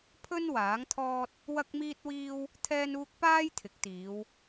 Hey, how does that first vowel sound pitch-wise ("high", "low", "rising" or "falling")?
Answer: high